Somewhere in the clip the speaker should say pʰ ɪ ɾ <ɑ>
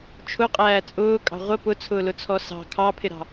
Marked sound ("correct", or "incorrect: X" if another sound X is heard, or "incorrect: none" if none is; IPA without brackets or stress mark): incorrect: ɑ̤